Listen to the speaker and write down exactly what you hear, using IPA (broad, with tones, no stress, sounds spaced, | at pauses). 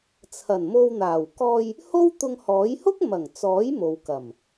t͡sʰ ɐ˨˩ n m o˧ w n̪ aː˨˩ w k ɔː˧ j | h o˥ w t̪ ʊ˧ ŋ h ɔː˨˥ j h ʊ˥ k̚ m ɐ˨˩ ŋ t͡s ɔː˨˥ j m o˨ w k ɐ˨˩ m